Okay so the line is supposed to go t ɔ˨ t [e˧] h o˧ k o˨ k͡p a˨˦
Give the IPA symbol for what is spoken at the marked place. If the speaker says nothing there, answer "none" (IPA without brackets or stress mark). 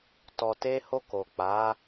e˧